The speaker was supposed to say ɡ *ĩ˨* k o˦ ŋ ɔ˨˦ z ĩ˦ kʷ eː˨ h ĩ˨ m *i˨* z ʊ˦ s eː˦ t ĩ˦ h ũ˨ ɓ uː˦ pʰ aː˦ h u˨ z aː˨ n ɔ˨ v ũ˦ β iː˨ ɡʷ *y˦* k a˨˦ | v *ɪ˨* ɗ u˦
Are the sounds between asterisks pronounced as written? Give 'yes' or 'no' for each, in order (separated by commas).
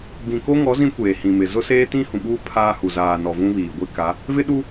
yes, no, no, no